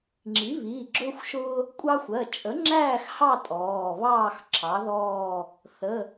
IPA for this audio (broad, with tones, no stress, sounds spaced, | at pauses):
ŋ͡ǁ i˩˥ β iː˩˧˩ ɡ͡ǁ ʊː˦ xʷ ʃ ʊː˦ | kʷʼ ɑ˦ xʷ ɜ˩˧˩ t͡ʃʼ ə˩˥ ŋ͡ǁ æː˦˨ x h ɑ˦˨ tʼ ɔː˩˧˩ β ɑː˦˨ x ǁʰ ɑ˩˥ ð ɔː˦˨ | θ ə˩˧˩